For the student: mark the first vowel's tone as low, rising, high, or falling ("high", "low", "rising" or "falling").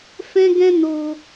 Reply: high